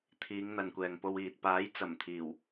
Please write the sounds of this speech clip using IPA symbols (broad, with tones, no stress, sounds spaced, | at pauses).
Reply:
t̪ʰ iː˨˧ ŋ n̪ ɐ˨ n kʷ ɛː˨ ŋ p o˧ w iː˨ t̚ p aː˨˥ j t͡s ɐ˨˩ m t̪ʰ iː˨˩ w